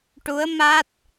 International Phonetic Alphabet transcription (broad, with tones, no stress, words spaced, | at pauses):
ʈu˧˥ə̯ma˦˥t̚